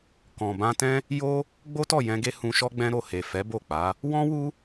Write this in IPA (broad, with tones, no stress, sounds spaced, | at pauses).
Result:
k ɔ̃˨ b ã˧ t ɛ̃˦ | j o˦ | ɡ͡b o˦ t ɔ˦˨ j ɛ̃˧ ɡ e˦ h ũ˧ ʃ ɔ˦ ɡ͡b ɛ̃˦ ɾ o˦˨ h e˨ f ɛ˨˦ b o˦˨ k͡p a˨˦ | w ɔ̃˦ w u˦